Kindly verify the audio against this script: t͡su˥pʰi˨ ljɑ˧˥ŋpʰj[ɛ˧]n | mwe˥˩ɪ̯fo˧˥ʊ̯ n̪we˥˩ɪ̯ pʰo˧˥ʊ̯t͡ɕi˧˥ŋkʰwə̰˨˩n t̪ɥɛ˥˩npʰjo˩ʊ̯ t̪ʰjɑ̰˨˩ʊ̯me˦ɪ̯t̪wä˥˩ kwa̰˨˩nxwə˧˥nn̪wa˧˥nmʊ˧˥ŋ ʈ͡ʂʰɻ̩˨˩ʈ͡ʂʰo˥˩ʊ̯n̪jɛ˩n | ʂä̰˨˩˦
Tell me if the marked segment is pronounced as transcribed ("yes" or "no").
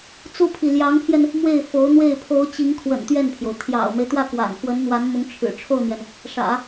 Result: yes